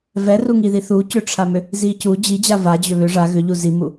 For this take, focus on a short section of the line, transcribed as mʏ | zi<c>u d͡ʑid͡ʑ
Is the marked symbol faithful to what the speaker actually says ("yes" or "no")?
yes